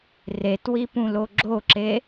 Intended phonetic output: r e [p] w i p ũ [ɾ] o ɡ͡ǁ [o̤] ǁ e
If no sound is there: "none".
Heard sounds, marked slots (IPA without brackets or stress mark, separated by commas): t, l, o